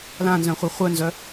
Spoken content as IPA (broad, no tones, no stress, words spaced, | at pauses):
lãnzœ̃χʷi χʷœnzœ